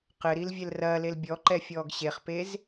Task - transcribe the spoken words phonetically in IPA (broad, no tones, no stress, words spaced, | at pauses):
qɘɾil vʲɛlrɐːlel bʲɔǃɛ fʲɔːɡɕeχpez